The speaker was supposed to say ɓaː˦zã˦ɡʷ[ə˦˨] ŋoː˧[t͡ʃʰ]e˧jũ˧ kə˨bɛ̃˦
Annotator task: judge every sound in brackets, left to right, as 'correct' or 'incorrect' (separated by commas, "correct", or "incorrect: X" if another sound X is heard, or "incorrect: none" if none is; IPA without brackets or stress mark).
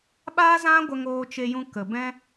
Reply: incorrect: ə˧, incorrect: t͡ʃ